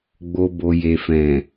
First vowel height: mid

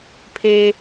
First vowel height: mid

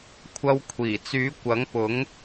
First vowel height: low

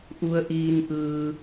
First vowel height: high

